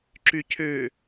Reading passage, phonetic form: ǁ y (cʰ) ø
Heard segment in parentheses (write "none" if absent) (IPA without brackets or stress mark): cʰ